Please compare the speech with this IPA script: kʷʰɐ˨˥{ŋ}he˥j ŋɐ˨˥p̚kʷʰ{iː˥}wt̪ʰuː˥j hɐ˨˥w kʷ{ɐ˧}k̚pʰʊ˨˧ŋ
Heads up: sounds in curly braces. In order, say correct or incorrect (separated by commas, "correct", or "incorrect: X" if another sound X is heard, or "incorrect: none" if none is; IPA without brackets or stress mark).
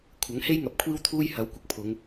correct, correct, correct